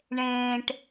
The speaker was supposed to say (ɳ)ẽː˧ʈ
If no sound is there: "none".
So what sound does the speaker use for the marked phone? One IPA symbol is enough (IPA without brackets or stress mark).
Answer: ɳ